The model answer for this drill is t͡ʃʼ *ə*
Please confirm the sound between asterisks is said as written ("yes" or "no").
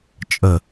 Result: yes